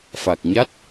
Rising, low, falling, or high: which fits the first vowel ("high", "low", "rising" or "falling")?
low